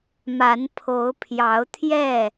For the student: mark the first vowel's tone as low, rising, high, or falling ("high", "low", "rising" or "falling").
rising